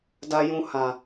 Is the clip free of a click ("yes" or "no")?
yes